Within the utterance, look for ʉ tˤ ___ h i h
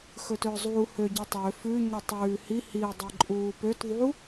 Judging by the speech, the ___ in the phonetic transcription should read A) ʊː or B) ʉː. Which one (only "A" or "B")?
B